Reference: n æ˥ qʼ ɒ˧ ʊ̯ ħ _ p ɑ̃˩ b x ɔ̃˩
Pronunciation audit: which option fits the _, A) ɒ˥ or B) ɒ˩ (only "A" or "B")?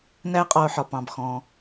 B